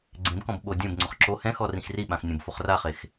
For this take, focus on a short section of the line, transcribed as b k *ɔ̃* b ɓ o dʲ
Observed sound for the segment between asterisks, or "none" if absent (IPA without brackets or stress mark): ɔ̃